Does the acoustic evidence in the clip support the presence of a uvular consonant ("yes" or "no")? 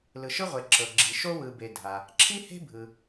yes